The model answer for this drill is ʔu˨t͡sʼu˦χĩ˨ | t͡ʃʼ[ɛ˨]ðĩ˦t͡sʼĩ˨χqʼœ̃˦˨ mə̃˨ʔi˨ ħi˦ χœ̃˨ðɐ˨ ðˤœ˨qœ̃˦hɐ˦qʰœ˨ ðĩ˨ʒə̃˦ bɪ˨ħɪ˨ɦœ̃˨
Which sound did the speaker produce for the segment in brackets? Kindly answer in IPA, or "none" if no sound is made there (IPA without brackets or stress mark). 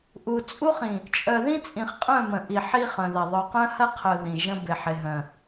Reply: œ˨